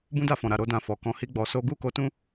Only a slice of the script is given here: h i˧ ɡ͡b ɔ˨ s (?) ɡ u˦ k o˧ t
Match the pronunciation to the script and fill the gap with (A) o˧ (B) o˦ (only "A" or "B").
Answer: A